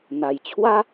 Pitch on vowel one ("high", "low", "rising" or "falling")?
low